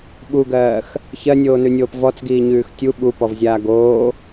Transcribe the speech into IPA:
ɓ u ɡ ɜː x | ç ɜ nʲ oː n ʉ nʲ oː p v ɔ t͡s ɡ iː ɲ ʉː x tʲ u ɓ u p ɔ v zʲ aː ɡ oː

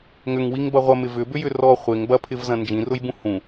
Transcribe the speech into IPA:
ŋ ʏ ŋ w i ŋ b ɐ ʁʷ ɐ m ɪ v ʏ b ʏ j ʏ r ɔ χʷ ɪ ŋ b ɐ pʰ ɪ v z ɐ̃ n d͡ʒ ĩ r ʊ j b ũ h ũ

